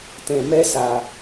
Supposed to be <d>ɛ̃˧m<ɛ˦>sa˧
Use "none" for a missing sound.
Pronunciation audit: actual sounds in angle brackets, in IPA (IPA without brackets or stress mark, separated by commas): t, ɛ˦